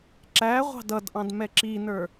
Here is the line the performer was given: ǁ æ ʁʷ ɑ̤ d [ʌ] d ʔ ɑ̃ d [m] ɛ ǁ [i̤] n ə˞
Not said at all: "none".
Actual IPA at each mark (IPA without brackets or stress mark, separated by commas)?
ʌ, m, i